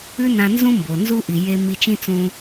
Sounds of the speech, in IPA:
ʉ˥nã˧nzũ˥mbo˩ nzu˥ʔi˩ je˧ mi˧t͡ʃĩ˥t͡sũ˧

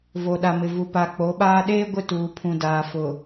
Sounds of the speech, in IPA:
vo˨ɗa˨mɪ˨vu˨ pa˨k͡po˨˦ɓaː˦ ɗeː˦ɡʷɪ˦˨tuː˨pʰũ˨ daː˨fʊ˨

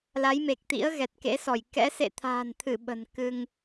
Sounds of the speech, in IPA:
la˨˦jme˨˩k̚t̪ḭ˧˥ə̯ ɣɛ˨˩t̚kḛ˧˥sɔ˧˩j kɛ̰˧˥ sḛ˧˨t̪ʰa̤ː˨˩nt̪ʰɨ˧˩ ɓə̤˨˩n kɨ˧ŋ

